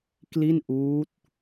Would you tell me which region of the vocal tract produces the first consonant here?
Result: velum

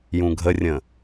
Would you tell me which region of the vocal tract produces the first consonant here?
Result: palate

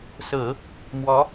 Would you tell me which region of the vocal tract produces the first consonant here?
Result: tongue tip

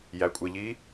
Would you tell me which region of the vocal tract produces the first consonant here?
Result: palate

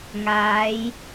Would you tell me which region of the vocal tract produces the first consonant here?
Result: velum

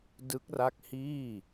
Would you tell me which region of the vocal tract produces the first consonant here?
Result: tongue tip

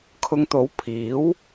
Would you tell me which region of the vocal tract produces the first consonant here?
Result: velum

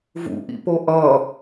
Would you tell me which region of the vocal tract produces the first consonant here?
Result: lips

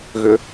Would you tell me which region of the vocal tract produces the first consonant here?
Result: velum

